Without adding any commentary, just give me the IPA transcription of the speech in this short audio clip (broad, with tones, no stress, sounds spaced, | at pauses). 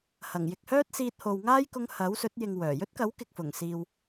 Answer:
h ɐ˨˩ ŋ j ɪ˨ k̚ h œː˥ t̚ s iː˧ t̚ h o˨ w ŋ aː˥ j k ʊ˧ ŋ h ɐ˨˥ w s ɵ˨˥ t̚ j ɪ˨ ŋ w œː˨˩ j ɵ˥ t̚ k ɐ˨˥ w k ɪ˨ k̚ f ʊ˨˩ ŋ s iː˨ w